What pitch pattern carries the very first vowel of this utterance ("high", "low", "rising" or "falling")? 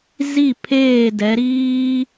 falling